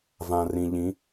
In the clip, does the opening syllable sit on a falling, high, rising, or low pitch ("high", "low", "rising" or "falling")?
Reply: low